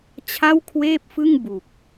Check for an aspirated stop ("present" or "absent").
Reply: present